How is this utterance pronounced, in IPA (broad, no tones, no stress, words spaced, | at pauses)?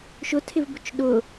ʃʊtʰɪvbʊt͡ʃ ɗʊ